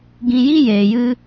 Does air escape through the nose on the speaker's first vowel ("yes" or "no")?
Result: yes